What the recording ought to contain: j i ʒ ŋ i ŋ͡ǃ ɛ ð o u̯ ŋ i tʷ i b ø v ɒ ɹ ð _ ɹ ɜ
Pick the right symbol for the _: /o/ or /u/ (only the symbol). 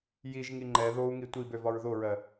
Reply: o